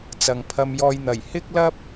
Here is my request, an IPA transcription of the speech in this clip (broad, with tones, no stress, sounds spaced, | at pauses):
t͡s ɐ˨ ŋ pʰ ɐ˧ m j ɔː˧ j n̪ ɐ˨˩ j h ɪ˥ k̚ l ɐ˥ p̚